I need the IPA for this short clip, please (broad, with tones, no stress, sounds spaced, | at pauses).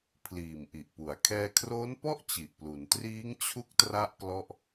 pʰ l iː˨˩ m ʔ i˨˩ ʔ p u˩˦ a̯ kʰ ɛː˧ kʰ r oː˦˥ n p ɔ˥˩ ʔ t͡ɕ i˨˩ ʔ p l u˩˦ n t r iː˦˥ ŋ t͡ɕʰ u˦˥ k̚ t r a˥˩ ʔ k l ɔ˥˩ ʔ